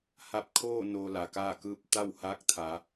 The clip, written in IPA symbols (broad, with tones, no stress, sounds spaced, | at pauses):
h a˧ p̚ kʰ oː˥˨ n oː˧ l a˩ k aː˥˨ k ɯː˥˨ p̚ t̪ a˥˨ w h aː˧˥ k̚ t̪ʰ a˩˧